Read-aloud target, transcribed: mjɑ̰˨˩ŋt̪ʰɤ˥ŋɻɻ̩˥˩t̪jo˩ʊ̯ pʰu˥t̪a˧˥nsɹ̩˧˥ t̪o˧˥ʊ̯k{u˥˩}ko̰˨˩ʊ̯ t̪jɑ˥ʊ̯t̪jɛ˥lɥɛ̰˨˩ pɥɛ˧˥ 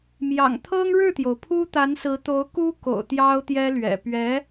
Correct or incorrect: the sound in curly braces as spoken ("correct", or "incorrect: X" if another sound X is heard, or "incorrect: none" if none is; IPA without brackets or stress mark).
incorrect: u˥